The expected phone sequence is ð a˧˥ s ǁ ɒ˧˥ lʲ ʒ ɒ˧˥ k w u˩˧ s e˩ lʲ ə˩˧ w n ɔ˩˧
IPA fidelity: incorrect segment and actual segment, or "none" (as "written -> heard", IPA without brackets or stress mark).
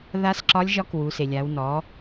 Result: ə˩˧ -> a˩˧